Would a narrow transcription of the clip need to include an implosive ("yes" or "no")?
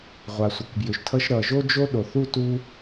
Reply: yes